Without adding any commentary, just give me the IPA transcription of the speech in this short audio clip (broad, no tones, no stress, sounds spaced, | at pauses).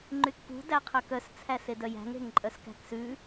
ŋ͡ǃ y k p ṳ d æ qʰ œ k œ s t͡sʰ æ s e d œ j æ̤ ŋ ɾ e̤ ŋ ǃʼ œ s k æ̤ k s ʉ